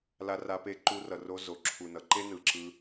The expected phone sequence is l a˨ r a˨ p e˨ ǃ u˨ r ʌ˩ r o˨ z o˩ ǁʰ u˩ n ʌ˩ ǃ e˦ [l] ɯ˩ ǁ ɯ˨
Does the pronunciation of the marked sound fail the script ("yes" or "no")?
yes